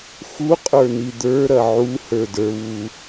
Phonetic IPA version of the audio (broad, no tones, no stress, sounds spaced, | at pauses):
x u qʼ ə˞ n i d̪ ə˞ ɾ ɐ ʕ u h ə˞ d ə˞ β u